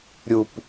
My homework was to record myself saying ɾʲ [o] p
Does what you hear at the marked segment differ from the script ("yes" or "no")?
yes